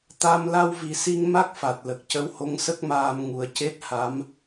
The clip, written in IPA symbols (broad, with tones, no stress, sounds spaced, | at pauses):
t̪ a˧ m l a˧ w v i˨˩ s i˧ ŋ m a˦˥ k̚ f a˨˩ t̚ l ə˨˩ k̚ c ə˧˥ w h o˧˥ ŋ s ə˦˥ k̚ m aː˧ m ŋ u˨˩˦ ə̯ c e˦˥ t̚ h a˧˥ m